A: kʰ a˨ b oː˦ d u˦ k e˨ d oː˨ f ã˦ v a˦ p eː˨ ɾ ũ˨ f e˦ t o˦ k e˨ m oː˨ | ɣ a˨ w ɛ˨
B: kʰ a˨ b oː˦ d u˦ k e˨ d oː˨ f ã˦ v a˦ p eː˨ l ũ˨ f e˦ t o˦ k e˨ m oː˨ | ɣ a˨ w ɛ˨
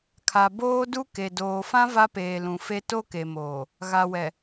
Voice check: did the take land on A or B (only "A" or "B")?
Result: B